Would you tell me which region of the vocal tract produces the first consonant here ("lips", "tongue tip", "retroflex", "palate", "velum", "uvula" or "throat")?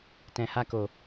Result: tongue tip